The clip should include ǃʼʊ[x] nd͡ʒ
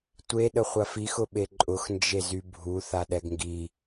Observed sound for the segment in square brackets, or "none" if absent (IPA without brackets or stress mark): x